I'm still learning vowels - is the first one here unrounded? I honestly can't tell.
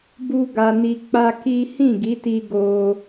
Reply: no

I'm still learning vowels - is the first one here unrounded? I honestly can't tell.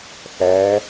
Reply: yes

